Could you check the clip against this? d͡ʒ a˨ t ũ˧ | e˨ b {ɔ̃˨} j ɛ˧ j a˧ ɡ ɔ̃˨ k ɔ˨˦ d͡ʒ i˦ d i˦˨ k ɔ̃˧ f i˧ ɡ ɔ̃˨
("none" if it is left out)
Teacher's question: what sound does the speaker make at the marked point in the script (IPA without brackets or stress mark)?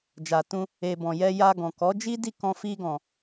ɔ̃˨